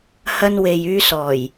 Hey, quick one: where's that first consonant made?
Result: throat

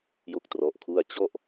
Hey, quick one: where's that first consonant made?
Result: palate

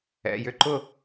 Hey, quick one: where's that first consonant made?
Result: palate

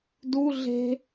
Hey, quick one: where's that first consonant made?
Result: tongue tip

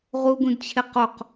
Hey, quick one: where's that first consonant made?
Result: uvula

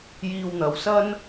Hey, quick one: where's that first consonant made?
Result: palate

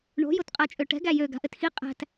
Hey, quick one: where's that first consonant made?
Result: retroflex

